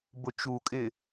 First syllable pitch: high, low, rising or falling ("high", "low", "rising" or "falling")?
low